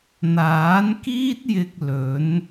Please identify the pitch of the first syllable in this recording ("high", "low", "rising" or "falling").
rising